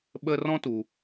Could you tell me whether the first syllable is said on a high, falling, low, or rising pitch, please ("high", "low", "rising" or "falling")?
high